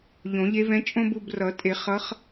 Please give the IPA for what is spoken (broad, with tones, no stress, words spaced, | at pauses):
ʎõ˨˩˦ʎe˧˥vɛ̃˧˥ t͡ʃʼõ˥bu˦˨b rʌ˨˩˦tʼe˨˩˦ χʌ˧˥χ